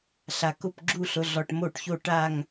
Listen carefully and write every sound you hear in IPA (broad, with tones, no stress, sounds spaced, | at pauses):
ɬ a˨ k ʊ˦˨ p ɡ͡ǁ u˦˨ ɬ ʊ˨ ɮ ɔ˨ ʈ m o˦˨ ʈ ç o˦˨ ʈ a˦˨ ŋ